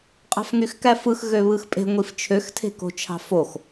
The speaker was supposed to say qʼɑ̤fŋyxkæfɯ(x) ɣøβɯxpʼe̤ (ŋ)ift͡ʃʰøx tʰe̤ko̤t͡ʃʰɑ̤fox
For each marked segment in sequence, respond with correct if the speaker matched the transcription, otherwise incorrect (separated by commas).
correct, incorrect